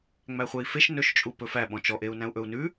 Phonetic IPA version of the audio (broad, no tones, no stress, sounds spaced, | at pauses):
ŋ͡m æ χʷ ɛ i̯ f e ʃ n ɵ ʃ t͡ʃʼ u p ɵ f æ ɓ ɔ̃ t͡ʃ ɔ ʔ e u̯ n æ̃ u̯ ʔ ɵ u̯ n ʉ